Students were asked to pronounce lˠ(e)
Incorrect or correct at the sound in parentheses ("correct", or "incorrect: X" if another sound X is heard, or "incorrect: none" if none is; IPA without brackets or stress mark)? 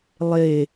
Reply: correct